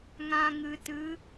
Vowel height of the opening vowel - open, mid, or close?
open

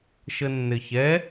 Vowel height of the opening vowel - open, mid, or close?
mid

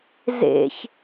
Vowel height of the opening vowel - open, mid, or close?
mid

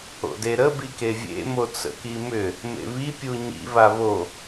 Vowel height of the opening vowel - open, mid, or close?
mid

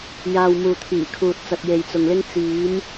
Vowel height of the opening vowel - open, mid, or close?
open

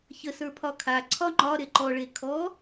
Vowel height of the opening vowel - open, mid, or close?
mid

